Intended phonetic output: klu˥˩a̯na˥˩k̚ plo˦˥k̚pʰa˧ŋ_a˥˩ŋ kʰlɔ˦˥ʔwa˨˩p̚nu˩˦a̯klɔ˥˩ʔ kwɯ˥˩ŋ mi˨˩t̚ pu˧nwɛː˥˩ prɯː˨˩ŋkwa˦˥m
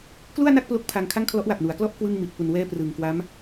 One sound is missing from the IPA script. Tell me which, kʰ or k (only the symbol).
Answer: kʰ